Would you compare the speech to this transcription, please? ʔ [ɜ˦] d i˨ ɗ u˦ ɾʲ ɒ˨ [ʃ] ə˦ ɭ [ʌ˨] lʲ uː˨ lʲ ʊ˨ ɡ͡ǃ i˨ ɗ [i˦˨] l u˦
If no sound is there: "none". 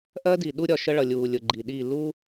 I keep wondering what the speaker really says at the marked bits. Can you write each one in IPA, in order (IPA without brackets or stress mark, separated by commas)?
ɜ˦, ʃ, ʌ˨, i˦˨